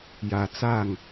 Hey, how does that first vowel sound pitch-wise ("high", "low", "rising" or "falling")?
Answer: low